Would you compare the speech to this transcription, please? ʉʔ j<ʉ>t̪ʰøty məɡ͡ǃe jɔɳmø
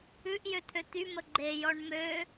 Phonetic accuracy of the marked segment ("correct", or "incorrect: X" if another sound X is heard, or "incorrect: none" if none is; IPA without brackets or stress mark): incorrect: ø